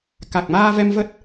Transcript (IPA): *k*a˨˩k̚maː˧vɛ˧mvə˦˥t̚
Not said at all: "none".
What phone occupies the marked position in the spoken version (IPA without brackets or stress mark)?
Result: k